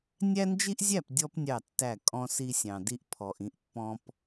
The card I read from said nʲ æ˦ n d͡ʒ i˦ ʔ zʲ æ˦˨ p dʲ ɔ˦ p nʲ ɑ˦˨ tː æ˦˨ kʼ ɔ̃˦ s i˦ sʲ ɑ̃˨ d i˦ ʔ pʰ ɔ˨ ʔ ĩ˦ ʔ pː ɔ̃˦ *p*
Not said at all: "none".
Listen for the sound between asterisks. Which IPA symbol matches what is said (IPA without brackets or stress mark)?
p